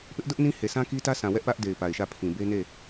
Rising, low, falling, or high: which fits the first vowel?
high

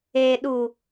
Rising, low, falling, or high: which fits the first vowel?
low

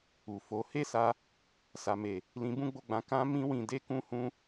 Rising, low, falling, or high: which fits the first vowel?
low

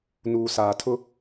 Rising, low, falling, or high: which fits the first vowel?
low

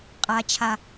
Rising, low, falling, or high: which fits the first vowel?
high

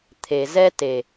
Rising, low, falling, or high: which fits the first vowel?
low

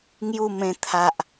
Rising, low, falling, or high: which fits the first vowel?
falling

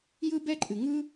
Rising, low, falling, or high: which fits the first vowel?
high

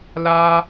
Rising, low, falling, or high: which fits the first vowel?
high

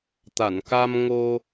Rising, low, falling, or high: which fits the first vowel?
low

